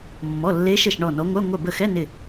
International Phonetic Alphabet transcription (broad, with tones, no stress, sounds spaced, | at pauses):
mː ɔ˩˧˩ lː e˨˦ ʃ ə˧˩ ʃ ɳ ɔ˧˩ n ɔ˨˦ ŋʷ œ˧˥˧ ŋʷ œ˧˩ b ə˧˩ x ɛ˧˥˧ n ɪ˧˩